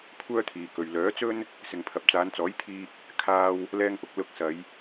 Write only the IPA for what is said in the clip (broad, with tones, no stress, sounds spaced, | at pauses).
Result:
kʷʰ œː˥ t̪ʰ iː˨ k ɵ˨ ɥ l œː˨˥ t͡s ɵ˥ n | s ɪ˨ ŋ pʰ ɐ˨ p̚ t͡s aː˨˧ n t͡s ɔː˨˥ j t̪ʰ iː˧ k̚ | kʰ aː˧ w | l ɛː˥ ŋ p ʊ˧ k̚ l ʊ˧ k̚ s ɐ˨˧ j